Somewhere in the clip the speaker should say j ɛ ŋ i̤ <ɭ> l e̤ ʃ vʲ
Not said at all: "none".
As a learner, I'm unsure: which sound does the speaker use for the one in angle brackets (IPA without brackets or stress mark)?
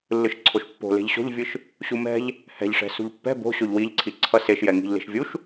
ʎ